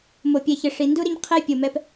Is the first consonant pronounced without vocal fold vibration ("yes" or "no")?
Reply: no